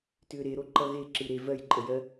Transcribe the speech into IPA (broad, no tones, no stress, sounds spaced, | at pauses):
t ʏː ɾ e ɾ o ǃ ʌ ɣ e ǁ ɯ ɾ e v ɜ j ǃʼ ə j ɜ